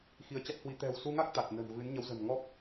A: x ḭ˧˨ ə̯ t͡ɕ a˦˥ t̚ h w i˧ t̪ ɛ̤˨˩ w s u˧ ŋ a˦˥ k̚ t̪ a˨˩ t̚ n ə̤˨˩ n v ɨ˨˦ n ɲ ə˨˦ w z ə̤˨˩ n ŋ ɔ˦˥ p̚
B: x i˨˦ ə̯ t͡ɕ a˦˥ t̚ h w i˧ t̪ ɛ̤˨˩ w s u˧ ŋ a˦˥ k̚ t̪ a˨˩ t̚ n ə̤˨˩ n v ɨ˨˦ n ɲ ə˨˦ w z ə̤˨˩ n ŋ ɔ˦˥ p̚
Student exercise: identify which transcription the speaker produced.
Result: B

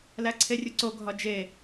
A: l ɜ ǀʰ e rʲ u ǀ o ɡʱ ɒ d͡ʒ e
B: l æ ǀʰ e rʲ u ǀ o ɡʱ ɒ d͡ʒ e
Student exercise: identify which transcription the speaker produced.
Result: B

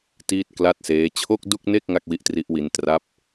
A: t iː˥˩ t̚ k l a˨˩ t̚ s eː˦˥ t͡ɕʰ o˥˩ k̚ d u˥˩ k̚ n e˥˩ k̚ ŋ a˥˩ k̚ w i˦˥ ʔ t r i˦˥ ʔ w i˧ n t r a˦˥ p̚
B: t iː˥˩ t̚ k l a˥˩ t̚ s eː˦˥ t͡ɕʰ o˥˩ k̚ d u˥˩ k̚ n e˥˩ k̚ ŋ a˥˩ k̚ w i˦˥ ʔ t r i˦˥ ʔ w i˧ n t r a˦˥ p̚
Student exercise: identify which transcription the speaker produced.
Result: B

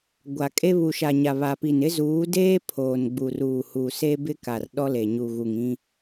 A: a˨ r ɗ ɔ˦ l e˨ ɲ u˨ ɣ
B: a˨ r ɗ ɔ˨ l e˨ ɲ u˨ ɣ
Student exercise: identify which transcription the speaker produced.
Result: A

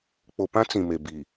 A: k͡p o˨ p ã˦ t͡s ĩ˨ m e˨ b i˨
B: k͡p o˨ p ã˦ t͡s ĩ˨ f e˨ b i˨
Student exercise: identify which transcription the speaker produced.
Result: A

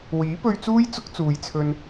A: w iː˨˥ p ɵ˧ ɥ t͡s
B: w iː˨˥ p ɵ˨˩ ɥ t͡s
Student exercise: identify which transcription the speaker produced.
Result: A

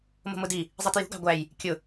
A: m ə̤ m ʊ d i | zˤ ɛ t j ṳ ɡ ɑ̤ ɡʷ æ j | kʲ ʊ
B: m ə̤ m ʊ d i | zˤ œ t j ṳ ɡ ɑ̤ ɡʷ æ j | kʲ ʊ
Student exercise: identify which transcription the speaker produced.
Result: A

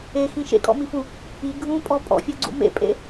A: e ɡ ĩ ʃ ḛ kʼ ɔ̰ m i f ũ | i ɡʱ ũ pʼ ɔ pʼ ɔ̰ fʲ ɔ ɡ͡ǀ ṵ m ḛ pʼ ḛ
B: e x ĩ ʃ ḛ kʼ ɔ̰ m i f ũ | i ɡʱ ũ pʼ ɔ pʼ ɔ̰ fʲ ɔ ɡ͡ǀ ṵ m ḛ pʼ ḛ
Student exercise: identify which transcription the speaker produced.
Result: B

